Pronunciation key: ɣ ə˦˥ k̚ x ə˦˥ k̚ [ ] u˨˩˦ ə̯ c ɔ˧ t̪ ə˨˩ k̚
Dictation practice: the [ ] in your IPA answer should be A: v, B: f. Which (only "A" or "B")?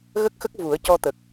A